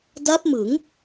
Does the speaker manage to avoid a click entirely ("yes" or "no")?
yes